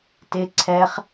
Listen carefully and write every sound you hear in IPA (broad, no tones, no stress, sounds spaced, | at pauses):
t ɪ ǀʰ ɛ χ